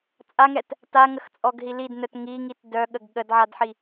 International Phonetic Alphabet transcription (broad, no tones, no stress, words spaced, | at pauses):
t͡sʼaŋɛt | taŋəxt͡sʼɔɡɦi lidnœt ŋiŋit dœɠəɡ ɠədʕadħi